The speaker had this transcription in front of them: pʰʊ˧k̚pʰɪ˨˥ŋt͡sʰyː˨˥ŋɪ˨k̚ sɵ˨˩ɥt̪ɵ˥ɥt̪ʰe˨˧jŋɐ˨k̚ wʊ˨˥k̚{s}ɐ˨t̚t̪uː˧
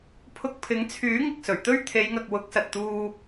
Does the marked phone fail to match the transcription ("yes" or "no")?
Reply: no